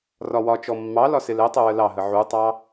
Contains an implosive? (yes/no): no